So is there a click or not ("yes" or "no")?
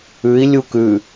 no